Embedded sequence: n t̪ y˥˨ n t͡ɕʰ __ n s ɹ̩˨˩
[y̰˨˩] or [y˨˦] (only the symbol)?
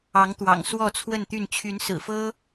y˨˦